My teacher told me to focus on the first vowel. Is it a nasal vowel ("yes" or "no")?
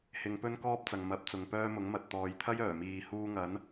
no